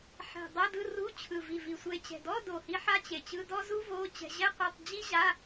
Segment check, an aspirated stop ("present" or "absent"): present